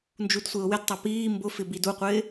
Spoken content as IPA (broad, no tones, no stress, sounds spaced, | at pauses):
n d͡ʒ u d sʷ e ʊ̯ w ɪ d tˤ a p iː m b ʊ f ɪ b i d u qʷ ɪː